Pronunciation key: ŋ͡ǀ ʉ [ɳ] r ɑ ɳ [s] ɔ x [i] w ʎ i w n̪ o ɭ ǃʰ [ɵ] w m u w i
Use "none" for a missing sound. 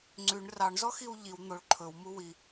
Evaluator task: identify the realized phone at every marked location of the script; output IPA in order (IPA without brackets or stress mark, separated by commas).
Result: ɳ, z, i, ɵ